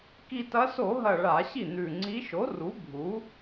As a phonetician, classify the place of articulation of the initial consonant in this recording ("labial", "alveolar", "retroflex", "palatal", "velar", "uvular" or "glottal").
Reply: velar